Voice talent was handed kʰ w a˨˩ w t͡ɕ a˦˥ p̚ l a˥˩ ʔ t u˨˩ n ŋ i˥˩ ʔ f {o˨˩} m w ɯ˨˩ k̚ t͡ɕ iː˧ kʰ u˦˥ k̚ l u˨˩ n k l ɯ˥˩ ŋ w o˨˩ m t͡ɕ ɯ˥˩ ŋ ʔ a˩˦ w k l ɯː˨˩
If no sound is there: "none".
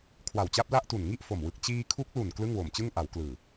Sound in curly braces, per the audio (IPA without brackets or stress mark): o˨˩